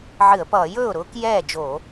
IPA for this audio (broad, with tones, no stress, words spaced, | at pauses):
ʕɨ˧˩˧ə̯pʌː˧˩˧jɵː˥˩ʊ̯ ɾʊː˨˥kjɛː˥˩d͡ʒo˧˩˧